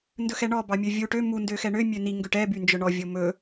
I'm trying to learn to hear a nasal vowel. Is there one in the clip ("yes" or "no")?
no